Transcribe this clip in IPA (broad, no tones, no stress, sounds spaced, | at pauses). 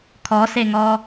kʰ ɔ s e ŋ ɔ